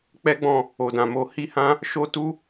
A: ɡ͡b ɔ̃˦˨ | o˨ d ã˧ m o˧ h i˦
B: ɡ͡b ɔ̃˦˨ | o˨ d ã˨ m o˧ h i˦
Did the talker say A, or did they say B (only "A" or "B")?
B